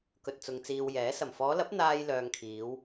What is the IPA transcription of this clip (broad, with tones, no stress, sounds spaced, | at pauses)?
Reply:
k ɵ˨ t̚ t͡s ʊ˨ ŋ t͡s iː˨ w j ɛː˨˥ s ɐ˨˩ m f ɔː˨˧ l ɐ˨˥ p̚ n̪ aː˧ j l œː˨ ŋ kʰ iː˨˧ w